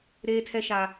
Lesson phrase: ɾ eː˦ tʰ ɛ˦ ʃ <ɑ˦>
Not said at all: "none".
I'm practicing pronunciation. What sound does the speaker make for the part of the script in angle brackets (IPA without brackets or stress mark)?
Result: a˦